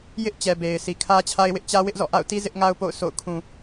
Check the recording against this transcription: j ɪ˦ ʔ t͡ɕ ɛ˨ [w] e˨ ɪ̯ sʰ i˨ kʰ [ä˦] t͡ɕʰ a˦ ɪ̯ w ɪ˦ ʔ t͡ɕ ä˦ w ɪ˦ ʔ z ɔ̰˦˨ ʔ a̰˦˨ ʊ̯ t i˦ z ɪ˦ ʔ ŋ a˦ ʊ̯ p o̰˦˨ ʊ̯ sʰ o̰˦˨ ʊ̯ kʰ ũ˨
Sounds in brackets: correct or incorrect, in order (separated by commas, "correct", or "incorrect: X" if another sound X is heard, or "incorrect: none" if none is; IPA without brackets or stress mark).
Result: incorrect: b, correct